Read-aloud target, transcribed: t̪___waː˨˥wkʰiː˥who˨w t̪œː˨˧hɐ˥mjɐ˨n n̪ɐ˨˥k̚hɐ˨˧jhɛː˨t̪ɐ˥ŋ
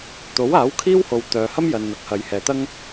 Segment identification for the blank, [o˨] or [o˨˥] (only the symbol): o˨˥